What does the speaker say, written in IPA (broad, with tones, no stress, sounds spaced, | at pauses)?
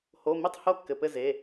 h o˩˧˩ m i˥˩ tˤ h o˥˩ kː ɘ˩˧˩ p ɘ˥˩ z e˩˧˩